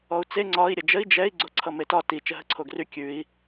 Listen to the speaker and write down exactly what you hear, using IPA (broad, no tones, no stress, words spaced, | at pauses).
ɔu̯t͡se ŋ͡ǀɒi̯ ɾʲəd͡ʒəi̯ d͡ʒɛi̯ ɡ͡ǀoǀʰʌmetɒ ti t͡ʃəɦəǀʰoɡry kʲʉi̯